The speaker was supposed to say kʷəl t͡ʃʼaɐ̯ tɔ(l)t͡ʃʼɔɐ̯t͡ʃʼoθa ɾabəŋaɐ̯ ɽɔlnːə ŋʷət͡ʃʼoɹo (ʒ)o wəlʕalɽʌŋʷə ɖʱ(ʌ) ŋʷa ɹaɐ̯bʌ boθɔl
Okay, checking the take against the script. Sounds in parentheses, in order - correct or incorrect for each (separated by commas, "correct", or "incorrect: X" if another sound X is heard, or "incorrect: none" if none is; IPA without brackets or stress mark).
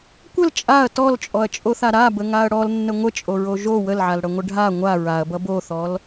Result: correct, correct, incorrect: a